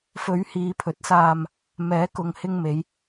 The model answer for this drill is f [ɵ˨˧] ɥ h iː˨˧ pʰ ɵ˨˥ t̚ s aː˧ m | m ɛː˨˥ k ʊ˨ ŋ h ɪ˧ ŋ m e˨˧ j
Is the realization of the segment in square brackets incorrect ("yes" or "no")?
no